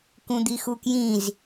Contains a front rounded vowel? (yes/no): no